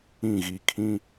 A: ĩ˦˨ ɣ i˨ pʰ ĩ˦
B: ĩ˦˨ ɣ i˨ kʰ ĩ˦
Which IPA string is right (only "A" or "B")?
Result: B